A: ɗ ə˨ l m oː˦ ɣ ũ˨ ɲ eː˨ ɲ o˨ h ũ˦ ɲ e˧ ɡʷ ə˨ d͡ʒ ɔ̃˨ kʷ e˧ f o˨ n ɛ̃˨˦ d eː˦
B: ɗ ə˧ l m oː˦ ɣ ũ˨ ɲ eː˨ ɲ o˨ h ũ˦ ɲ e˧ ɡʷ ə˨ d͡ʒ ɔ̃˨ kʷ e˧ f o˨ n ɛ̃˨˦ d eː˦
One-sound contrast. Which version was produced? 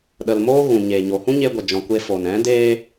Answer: B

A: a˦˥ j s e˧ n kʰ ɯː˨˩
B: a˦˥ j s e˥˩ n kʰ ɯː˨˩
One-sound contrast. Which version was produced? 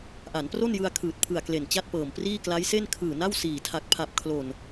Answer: B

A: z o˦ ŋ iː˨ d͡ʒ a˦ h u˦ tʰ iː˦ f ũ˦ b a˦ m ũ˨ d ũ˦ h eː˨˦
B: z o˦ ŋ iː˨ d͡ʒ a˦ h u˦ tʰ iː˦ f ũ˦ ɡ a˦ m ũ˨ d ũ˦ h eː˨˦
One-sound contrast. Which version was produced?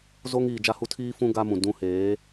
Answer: B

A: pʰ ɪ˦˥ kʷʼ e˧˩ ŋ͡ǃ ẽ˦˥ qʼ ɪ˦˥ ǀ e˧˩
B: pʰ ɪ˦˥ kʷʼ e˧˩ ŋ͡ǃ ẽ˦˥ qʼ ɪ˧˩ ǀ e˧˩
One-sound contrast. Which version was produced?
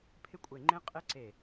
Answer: A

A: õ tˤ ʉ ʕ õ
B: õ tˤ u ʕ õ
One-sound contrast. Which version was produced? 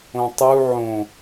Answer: B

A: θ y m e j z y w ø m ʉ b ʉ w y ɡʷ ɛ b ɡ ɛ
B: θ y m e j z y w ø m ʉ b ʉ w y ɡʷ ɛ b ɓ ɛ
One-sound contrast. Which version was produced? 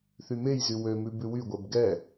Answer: A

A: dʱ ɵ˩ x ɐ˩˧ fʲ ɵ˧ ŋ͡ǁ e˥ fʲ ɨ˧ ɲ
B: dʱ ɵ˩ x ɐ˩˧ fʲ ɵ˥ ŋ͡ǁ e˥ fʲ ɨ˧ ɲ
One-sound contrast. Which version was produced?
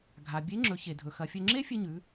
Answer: A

